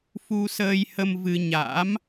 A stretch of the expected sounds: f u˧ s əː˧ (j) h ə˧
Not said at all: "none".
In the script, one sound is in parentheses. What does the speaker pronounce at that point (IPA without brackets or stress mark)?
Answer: j